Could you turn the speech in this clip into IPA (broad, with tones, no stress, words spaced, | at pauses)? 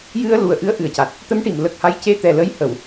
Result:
jɨ˧ə̯ lu˨˩ə̯ʔɨ˧˥ə̯ ʔɨ˨˩ə̯ca˨˩t̚ | t̪ə˧˥mʈi˨˩˨mlə˨˩k̚ha˧˥j ce˧t̪ɛ˨˩lə˧˥jhə˨˩˨w